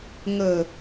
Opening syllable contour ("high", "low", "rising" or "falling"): low